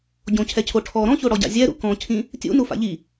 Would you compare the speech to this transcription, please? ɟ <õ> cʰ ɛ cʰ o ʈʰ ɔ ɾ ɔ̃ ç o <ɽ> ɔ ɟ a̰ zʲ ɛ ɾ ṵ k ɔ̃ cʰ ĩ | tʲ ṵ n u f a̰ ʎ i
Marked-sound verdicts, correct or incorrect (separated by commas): correct, correct